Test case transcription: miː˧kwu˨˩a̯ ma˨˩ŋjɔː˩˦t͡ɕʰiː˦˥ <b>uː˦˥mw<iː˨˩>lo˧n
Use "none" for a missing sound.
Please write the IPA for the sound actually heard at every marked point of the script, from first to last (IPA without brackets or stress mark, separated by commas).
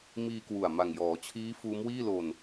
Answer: f, iː˥˩